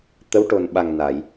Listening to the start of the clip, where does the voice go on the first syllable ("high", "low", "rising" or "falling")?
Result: rising